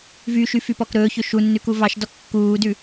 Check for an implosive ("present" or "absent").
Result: absent